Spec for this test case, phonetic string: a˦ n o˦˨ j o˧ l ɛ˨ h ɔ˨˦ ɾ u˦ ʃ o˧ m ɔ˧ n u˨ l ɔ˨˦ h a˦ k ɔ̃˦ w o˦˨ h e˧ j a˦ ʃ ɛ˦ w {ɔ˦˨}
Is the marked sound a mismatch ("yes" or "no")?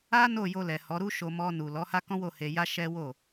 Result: yes